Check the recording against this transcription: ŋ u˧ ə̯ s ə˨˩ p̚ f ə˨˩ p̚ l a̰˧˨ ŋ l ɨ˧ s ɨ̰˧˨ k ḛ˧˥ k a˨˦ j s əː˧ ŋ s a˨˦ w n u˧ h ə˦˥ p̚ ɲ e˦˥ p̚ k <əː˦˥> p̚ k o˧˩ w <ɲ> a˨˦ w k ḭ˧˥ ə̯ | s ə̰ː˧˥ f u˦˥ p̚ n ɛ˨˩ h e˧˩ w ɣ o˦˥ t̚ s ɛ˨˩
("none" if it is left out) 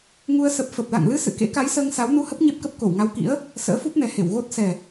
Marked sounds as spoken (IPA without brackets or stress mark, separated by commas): ə˦˥, ŋ